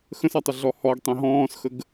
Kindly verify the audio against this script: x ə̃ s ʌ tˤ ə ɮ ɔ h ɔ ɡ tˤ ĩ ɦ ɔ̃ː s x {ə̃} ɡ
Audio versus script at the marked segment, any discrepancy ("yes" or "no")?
yes